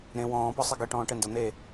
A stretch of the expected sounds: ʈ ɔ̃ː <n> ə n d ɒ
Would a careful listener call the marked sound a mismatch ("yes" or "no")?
yes